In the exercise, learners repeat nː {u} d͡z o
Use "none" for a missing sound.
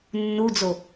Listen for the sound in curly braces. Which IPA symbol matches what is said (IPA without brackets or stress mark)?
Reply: u